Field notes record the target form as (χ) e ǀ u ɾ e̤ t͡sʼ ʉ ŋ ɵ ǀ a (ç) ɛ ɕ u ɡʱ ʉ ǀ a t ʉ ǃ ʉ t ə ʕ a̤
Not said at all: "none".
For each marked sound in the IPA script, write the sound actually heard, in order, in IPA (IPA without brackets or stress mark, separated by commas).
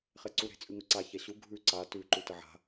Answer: χ, ç